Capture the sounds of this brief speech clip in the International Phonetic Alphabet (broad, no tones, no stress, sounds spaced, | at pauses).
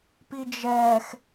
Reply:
p i d͡ʒ ɛ x